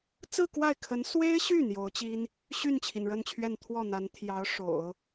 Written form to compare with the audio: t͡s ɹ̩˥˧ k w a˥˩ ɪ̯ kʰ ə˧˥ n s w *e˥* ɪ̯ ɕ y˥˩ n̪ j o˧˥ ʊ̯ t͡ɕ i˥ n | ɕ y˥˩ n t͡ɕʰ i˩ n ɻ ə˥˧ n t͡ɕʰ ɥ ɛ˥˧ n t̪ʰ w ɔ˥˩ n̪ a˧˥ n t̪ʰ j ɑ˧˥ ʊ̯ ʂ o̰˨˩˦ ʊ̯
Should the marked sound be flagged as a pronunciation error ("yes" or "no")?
no